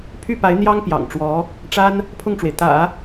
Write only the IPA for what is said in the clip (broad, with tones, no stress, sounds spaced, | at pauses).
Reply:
pʰ y˥˩ p a˧˥ ɪ̯ n̪ j ɑ˥ ŋ p j ɑ̰˨˩ ŋ ʈ͡ʂ w ɔ˧˥ | ʈ͡ʂ a˥ n | pʰ ʊ˥˩ ŋ ʈ͡ʂ w e˩ ɪ̯ t̪ ä̰˨˩˦